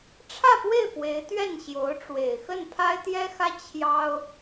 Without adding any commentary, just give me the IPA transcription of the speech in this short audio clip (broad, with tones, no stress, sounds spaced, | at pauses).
ʈ͡ʂʰ ä˥˧ p w e˥˩ ɪ̯ p w e˧˥ ɪ̯ t̪ ɥ ɛ˥˩ n ɕ j o˧˥ ʊ̯ ʈ͡ʂ w e˨˩ ɪ̯ x ə˥˩ n pʰ a˥ ɪ̯ t̪ j ɛ˥ x ä˥ t͡ɕʰ j ɑ˥ ʊ̯